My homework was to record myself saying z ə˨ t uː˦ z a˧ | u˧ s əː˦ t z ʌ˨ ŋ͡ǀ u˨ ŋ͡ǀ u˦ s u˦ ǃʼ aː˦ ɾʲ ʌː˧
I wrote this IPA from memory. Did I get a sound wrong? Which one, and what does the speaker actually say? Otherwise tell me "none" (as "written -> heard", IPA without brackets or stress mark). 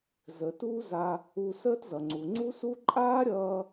none